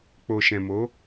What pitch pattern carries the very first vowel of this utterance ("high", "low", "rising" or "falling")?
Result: low